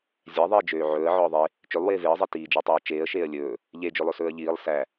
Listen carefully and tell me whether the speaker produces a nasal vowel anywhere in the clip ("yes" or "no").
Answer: no